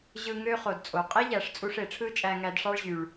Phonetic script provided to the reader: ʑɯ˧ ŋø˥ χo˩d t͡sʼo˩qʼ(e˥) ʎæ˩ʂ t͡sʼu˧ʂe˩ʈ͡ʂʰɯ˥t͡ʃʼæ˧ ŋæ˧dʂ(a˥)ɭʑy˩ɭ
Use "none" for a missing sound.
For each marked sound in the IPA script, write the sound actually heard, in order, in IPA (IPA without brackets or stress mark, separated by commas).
e˥, ɑ˥